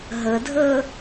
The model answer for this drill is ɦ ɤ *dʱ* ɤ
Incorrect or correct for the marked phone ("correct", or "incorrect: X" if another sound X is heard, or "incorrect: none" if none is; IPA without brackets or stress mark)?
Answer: correct